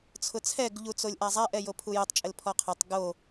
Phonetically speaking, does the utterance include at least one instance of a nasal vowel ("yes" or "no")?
no